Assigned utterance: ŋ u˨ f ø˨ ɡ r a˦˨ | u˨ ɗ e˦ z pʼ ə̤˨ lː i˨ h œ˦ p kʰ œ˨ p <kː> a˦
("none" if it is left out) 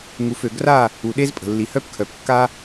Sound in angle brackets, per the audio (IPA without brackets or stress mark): kː